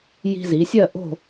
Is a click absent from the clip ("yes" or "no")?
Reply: yes